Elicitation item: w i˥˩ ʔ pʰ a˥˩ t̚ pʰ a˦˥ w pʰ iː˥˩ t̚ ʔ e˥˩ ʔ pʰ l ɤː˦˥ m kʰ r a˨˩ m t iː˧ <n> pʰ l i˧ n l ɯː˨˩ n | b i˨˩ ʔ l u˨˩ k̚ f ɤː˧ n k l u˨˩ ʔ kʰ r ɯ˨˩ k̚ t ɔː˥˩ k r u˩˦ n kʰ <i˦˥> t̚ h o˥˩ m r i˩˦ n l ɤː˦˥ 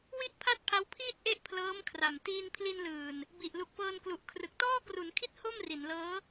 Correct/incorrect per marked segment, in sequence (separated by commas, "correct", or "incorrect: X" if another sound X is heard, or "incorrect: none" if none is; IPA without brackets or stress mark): correct, correct